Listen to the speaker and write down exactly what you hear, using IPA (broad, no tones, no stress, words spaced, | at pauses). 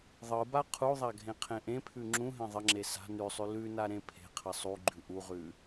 ðˤɯba qʰuðˤa ɡʱẽqʰẽʔẽpʰʉ ŋ͡ǁũɦẽ ðˤəŋ͡ǁe sa̤ nʉsˤʉ lʉna ɾẽpʰe̤qʰə sˤuɡ͡ǃʉ ʔuʁʉ